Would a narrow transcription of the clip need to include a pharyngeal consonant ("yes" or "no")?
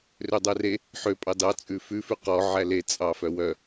yes